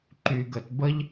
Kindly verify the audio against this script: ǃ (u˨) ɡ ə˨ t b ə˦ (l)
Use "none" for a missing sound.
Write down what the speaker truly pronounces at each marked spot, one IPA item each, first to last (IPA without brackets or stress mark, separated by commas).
y˨, ʎ